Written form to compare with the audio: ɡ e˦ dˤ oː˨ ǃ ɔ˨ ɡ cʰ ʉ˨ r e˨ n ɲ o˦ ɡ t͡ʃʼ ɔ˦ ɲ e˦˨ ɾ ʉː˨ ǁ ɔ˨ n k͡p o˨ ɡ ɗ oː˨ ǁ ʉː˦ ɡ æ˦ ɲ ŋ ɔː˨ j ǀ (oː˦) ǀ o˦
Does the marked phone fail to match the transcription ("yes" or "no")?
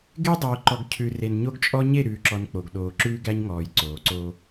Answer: yes